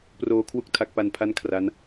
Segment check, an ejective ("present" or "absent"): absent